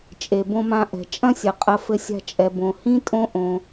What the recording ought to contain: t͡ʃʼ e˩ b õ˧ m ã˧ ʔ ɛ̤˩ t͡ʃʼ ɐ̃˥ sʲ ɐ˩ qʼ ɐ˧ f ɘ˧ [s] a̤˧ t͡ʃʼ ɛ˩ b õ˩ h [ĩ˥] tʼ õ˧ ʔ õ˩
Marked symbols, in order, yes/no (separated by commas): no, yes